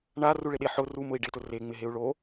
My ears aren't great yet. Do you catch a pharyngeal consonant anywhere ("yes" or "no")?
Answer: yes